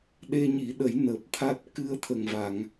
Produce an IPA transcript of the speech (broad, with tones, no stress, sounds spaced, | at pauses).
ɗ e˧ ɲ i˨˩˦ ɗ ə˨˩˦ j n əː˨˩ p̚ t̪ʰ a˦˥ t̚ k ɨ˧ ə̯ t̪ʰ ə˨˩ ŋ v a˨˩˨ ŋ